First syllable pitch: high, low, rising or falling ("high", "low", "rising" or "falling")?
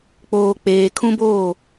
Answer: low